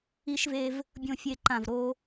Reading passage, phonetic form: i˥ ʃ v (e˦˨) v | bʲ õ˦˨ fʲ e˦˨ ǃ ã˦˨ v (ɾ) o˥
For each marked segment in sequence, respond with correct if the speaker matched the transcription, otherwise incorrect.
incorrect, correct

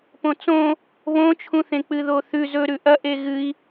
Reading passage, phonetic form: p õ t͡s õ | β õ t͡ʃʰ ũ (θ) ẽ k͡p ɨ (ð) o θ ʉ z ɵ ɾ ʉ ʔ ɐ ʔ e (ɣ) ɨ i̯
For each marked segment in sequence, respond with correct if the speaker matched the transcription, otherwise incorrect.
correct, correct, correct

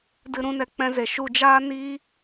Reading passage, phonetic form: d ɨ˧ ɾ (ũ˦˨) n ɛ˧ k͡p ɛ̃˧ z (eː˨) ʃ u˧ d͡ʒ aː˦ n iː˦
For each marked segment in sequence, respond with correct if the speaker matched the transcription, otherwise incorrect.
incorrect, incorrect

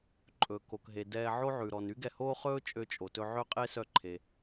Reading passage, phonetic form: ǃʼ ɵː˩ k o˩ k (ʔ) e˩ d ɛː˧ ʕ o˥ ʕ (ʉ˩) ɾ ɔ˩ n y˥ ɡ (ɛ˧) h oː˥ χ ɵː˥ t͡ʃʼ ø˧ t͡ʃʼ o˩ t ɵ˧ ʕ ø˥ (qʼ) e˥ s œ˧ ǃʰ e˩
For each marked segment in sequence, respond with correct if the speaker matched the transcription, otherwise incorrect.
incorrect, correct, correct, correct

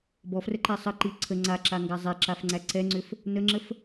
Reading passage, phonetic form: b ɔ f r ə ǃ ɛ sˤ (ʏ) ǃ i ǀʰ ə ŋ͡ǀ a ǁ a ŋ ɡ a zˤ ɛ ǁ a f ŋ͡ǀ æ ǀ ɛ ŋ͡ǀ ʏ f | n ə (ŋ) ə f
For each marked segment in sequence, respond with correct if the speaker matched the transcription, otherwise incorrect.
incorrect, incorrect

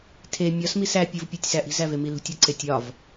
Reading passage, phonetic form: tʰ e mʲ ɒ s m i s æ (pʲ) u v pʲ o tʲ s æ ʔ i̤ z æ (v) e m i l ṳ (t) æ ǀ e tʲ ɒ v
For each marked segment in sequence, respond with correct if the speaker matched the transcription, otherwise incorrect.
correct, correct, incorrect

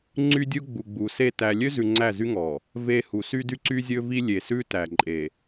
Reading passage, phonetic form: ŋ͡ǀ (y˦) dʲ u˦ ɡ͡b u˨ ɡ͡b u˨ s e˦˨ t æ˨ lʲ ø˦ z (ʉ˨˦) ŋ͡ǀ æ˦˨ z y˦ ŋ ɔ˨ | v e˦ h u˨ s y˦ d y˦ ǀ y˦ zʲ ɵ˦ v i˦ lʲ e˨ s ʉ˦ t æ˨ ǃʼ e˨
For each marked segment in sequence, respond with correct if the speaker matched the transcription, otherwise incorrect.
correct, incorrect

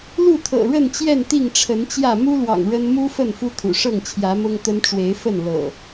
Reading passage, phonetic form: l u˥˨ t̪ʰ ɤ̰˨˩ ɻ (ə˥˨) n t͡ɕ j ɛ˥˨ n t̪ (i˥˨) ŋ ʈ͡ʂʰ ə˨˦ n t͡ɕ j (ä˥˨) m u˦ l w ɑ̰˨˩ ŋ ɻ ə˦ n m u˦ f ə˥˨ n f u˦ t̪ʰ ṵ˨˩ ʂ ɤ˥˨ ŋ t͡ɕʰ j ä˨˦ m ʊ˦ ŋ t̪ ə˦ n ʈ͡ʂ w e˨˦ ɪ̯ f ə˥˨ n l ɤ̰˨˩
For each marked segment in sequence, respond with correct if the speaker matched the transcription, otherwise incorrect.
correct, correct, correct

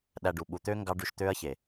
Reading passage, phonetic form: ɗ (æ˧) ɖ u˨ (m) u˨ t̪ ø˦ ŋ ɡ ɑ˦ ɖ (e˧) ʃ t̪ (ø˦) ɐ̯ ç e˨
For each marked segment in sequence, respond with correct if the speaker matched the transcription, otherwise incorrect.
correct, incorrect, incorrect, correct

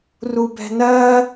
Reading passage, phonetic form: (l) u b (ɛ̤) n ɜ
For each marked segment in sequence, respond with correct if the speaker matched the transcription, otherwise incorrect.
incorrect, correct

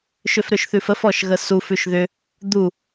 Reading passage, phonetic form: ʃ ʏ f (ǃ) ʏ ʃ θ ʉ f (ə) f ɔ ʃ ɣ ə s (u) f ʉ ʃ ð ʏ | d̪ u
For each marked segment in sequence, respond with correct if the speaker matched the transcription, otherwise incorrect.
incorrect, correct, correct

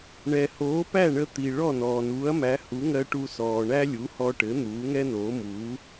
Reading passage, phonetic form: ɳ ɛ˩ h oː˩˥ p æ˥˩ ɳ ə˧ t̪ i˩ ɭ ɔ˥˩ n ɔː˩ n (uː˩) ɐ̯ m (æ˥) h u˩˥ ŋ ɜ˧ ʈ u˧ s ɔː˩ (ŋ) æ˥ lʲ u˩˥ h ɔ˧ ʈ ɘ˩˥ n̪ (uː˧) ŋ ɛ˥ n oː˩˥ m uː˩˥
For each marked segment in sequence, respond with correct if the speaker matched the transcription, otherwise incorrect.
incorrect, incorrect, incorrect, incorrect

